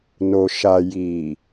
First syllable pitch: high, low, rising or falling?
low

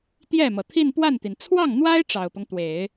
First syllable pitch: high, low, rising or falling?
falling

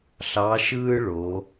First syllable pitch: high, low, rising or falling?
rising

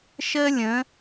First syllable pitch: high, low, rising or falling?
high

